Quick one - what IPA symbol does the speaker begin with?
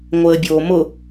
ŋʷ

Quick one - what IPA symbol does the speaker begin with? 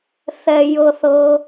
θ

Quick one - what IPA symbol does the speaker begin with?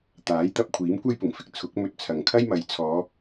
t̪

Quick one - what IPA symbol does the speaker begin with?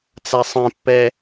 t͡s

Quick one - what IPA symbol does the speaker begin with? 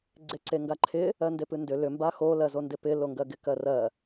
ɡ͡ǀ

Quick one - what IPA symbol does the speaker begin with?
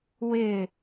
w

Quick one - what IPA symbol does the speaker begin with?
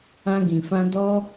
ã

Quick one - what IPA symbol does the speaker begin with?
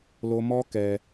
l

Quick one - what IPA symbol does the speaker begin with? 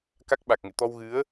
k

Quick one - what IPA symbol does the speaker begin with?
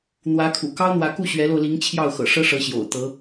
n̪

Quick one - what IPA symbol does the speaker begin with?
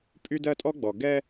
pʼ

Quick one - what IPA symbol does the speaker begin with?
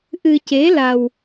ʔ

